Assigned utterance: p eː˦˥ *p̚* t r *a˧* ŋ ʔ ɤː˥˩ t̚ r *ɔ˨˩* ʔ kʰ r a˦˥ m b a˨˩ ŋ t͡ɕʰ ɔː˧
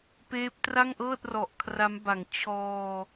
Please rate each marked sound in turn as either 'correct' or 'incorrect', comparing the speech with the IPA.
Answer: correct, incorrect: a˥˩, correct

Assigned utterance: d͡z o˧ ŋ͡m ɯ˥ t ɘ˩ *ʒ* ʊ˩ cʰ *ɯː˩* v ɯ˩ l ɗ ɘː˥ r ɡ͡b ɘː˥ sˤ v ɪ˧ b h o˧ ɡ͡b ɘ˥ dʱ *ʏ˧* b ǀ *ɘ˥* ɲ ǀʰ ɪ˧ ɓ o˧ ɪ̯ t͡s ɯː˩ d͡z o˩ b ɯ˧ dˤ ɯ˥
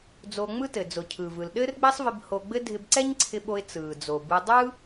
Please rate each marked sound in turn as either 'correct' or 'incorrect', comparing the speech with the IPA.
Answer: incorrect: d͡z, correct, incorrect: ɪ˧, incorrect: ɛ˥

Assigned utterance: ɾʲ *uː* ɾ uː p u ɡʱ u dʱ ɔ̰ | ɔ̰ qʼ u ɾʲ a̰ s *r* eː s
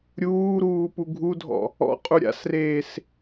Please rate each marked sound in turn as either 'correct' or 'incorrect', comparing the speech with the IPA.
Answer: correct, correct

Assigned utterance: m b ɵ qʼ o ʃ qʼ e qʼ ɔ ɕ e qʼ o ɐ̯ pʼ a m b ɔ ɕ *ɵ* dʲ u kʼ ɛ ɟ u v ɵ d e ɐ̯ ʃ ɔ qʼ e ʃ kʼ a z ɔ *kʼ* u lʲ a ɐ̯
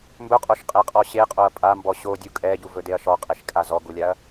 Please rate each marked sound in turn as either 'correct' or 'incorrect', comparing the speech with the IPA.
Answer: incorrect: o, incorrect: ɡ

